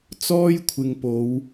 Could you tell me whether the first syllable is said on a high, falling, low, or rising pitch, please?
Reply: high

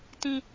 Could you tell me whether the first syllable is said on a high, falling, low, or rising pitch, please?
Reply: high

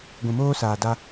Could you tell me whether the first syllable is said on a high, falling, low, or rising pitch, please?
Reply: low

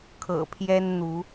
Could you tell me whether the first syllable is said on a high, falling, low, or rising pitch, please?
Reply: low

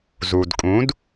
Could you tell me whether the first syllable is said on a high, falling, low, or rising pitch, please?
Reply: low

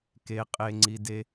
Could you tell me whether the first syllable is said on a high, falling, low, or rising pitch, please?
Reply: low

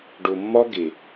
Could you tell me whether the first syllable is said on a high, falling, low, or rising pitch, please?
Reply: low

